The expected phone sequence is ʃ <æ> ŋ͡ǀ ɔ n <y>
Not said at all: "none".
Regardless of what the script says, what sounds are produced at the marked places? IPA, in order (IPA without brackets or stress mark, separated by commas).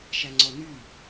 æ, y